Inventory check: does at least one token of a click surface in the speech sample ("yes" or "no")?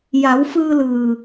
no